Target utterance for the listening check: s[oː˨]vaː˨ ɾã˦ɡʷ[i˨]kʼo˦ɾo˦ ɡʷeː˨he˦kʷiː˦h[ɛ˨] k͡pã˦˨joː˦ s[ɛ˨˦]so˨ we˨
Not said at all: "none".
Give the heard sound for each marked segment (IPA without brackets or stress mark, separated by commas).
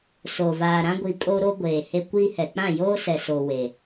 oː˨, i˨, ɛ˨, ɛ˨